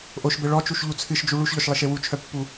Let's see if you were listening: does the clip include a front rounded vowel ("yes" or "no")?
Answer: yes